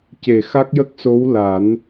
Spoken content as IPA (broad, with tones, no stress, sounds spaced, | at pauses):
c e˨˩ x a˦˥ k̚ j ə˦˥ k̚ s o˧˥ w l a˨˩˦ n